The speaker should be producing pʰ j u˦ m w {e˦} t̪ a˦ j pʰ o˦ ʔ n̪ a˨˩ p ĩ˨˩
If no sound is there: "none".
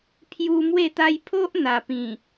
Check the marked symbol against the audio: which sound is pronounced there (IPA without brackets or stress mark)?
e˥˧